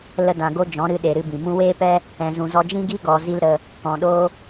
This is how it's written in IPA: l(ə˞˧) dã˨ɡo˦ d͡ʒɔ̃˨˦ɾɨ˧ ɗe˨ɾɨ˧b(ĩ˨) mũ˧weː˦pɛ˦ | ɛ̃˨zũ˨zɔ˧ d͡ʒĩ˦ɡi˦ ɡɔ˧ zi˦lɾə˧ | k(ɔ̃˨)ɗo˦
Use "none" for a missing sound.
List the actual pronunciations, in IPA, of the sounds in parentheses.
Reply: ə˧, ĩ˨, ɔ̃˨

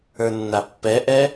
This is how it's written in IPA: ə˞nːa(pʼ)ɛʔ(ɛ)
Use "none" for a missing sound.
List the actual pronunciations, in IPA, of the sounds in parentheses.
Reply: pː, ɛ

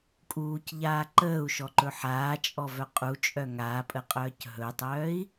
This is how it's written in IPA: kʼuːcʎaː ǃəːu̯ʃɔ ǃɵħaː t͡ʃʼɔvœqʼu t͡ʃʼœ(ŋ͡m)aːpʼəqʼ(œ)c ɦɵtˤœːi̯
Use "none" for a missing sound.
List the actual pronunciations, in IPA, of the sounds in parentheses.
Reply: ŋ, œː

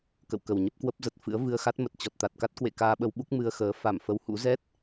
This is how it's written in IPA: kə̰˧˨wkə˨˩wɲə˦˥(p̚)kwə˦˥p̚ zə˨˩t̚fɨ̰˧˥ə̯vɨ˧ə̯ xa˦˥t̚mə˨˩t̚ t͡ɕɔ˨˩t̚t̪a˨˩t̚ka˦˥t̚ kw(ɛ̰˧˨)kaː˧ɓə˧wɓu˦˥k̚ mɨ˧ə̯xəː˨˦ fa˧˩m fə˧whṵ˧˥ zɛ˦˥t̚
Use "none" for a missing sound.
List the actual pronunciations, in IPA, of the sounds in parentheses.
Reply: p̚, ḛ˧˨

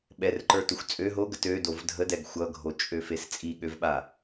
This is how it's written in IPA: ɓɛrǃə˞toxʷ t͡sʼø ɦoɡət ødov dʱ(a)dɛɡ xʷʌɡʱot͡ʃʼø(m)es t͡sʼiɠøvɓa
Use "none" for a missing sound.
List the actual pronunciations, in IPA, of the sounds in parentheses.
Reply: ə, f

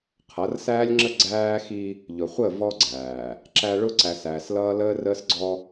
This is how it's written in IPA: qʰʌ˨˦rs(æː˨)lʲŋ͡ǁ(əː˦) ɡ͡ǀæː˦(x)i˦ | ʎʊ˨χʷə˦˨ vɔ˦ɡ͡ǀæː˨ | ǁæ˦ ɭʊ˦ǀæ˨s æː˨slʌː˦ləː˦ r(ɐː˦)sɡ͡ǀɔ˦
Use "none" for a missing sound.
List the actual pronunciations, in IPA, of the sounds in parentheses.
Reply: æː˦, ə˦, x, əː˦

